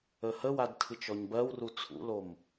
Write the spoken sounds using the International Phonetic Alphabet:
ə h ə w a d tʰ ɨ t͡ʃ ɔ ɲ b ɜ w r u t͡sʰ ṵ l o m

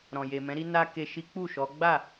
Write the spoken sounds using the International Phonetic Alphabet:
ɾ ɔ̃˨ j e˨ m ɛ̃˨˦ ɾ i˦ n a˧ k e˨ ʃ i˨˦ k͡p u˦˨ ʃ ɔ˨˦ ɡ͡b a˦˨

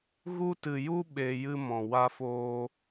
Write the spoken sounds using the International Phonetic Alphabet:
ɣ u˦ t ɨ˧ j u˦ ɓ e˧ j ɨ˧ m ɔ̃˨ w a˧ f oː˧

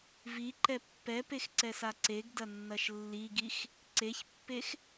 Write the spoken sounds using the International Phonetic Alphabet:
v i ǃ ɛ pː ɛ p e x ǀ ɛ s a ǀ e ɡ d ɐ nː ɐ ʃ lː i ɡ i x | ǀ e ç pː e x

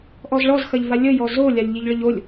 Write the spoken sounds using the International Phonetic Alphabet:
ʔ ɔ z ɭ ɔ z x ɐ ʎ v a lʲ ə j ɔ z o lʲ a lʲ ʎ i ʎ ɭ ə ʎ o lʲ

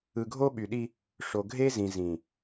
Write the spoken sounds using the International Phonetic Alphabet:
ɯ˨ ɡʱ o˦ ɓ y˨ ɗ i˦ | ʂ o˨ ɡʱ e˦ z ĩ˨ z ĩ˨

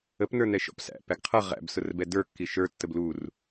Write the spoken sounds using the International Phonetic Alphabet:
ə p n ə˞ n ɛ ʃ ɔ̰ p s æ̰ p æ ɡ qʰ ʌ ʁ æ̰ b s ʊ r b ɛ d ə˞ kː i ʃ ə˞ tː ə b l u r

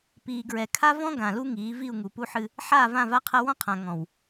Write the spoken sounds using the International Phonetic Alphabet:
p iː˨ ɡ ɹ ɛ˨ kʰ a˦ v ɔ̃˦ ɡ ã˨ l u˦ ŋ iː˨˦ v i˦˨ u̯ ŋ u˨ p u˦ ħ ɨ˦ | ħ aː˦˨ v ã˦˨ v a˦ qʰ ɐ˦ w ɔ̃˦ qʰ ã˨ ŋ ɔ̃˨ w

